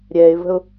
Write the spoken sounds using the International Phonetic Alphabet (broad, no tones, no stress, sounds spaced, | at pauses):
ɾʲ ɛ ɪ̯ v ə̤ ʊ̯